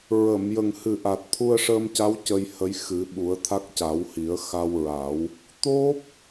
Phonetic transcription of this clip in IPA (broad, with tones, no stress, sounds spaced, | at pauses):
ɹ ə˨˩˨ m j ə˨˩ ŋ h ɨ˨˩ ʔ a˨˩ t̚ t̪ʰ u˧ ə̯ ʂ əː˧ m c a˧˥ w c ə˧ j h ə˧˥ j x ɨ˨˩˦ ɓ u˨˩˦ ə̯ t̪ʰ a˦˥ k̚ c a˨˩˦ w h i˨˩˦ ə̯ x a˧ w ɹ a˨˩˦ w | t̪ o˦˥ p̚